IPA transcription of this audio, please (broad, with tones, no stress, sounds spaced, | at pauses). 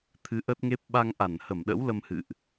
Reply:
t̪ʰ ɨ˨˦ ʔ ə˦˥ t̚ ŋ e˦˥ p̚ ɓ a˧ ŋ ʔ a˧˩ n h ə˧˩ m ɗ ə̰˧˥ w l ə˧ m h ɨ̰˧˨ ʔ